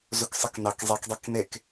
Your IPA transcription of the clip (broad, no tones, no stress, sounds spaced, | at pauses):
z u k sˤ i k n ɑ k zˤ i k dˤ i k n e k